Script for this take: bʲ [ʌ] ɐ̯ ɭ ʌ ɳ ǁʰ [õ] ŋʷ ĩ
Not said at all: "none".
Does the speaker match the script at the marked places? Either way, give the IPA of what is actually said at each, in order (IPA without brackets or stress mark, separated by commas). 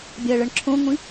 a, õ